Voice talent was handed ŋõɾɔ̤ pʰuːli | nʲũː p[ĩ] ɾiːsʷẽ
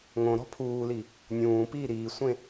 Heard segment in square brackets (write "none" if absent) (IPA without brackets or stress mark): i